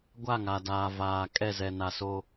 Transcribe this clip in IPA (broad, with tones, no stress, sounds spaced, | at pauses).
ɡʷ a˦˨ ŋ a˨ d aː˨ v aː˨ kʼ ɛ˦˨ z ɛ˨ n a˨ s o˦